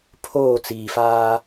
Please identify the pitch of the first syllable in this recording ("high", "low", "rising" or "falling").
falling